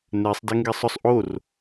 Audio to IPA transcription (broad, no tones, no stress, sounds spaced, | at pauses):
n ɛ sˤ d ɛ ŋ ɡ ɛ sˤ ʊ sˤ ʔ o r